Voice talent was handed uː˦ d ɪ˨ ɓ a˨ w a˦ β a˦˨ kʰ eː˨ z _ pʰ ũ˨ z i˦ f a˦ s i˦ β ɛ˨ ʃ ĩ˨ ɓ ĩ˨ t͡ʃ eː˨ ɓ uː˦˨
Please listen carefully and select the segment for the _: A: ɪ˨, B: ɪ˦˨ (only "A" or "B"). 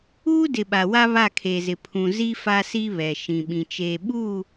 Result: A